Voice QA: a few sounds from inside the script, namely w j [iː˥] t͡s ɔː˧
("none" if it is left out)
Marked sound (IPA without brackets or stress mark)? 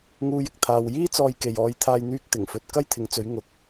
iː˥